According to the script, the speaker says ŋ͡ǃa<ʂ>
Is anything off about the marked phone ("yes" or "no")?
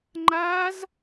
yes